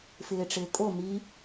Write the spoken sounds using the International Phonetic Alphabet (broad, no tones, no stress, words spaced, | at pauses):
fɪːʈ͡ʂɪːkʼo mi